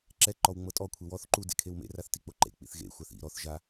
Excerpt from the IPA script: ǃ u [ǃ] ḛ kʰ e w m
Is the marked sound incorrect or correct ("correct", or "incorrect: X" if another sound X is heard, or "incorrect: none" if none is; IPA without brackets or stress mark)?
incorrect: d